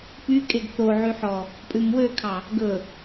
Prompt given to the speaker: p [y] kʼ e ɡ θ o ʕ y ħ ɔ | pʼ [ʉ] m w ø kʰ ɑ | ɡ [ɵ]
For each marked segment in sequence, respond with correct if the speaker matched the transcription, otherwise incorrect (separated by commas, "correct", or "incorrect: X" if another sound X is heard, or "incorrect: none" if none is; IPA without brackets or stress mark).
correct, correct, correct